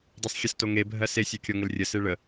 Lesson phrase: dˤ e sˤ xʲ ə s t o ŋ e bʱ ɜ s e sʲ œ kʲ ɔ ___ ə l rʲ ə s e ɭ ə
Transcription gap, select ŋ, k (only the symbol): ŋ